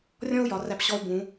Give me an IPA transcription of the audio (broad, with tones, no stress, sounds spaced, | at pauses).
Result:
rʲ ɔ̃˥ u̯ j ɒ˩˧ r æ˧˩ p ɕ ɔ˧ u̯ b ũ˩˧